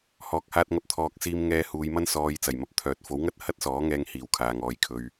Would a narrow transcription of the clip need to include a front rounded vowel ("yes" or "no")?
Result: yes